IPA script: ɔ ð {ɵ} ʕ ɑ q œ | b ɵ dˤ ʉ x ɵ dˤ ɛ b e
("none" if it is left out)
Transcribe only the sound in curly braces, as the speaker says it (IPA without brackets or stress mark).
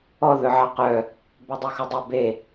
ɵ